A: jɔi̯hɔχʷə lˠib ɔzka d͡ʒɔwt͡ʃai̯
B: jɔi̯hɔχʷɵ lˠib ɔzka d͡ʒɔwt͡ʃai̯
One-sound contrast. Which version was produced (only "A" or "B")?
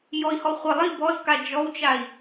A